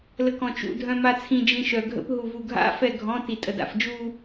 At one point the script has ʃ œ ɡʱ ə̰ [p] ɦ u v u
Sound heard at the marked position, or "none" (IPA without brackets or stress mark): p